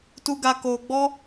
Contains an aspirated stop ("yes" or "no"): no